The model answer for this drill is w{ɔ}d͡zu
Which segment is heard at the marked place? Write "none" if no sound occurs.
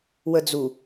ə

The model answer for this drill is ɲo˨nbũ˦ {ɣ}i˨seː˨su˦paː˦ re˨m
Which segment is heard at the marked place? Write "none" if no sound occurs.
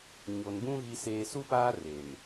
ɣ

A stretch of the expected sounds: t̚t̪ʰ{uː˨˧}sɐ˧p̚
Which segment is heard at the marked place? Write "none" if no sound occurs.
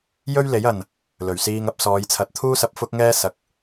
uː˥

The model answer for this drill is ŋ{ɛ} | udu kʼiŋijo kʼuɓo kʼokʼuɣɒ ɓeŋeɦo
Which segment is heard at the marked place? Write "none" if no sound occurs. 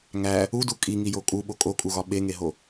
æ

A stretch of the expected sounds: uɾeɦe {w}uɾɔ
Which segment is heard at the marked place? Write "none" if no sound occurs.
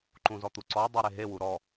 w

